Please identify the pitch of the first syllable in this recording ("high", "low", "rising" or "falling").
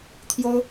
high